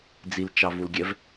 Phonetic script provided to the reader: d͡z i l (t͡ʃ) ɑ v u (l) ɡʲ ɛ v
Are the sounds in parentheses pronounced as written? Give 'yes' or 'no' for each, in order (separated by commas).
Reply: yes, yes